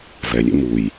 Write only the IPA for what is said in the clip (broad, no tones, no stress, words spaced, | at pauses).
vɛlʲḛ muj